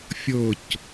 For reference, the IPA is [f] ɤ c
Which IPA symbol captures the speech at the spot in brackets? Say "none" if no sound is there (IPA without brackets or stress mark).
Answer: fʲ